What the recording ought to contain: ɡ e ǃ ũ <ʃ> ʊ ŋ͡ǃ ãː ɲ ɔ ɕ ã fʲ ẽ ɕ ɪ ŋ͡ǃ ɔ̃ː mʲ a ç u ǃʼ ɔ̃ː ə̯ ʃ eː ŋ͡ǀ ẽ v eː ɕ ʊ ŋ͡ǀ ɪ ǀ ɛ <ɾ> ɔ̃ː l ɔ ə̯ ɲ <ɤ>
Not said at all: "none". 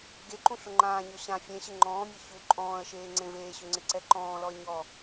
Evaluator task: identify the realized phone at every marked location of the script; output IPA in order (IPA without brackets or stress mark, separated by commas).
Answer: ɬ, ǃ, ɔ